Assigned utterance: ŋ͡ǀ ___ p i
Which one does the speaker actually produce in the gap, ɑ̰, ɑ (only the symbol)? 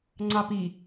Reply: ɑ